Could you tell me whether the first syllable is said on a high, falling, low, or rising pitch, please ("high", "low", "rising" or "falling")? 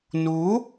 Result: rising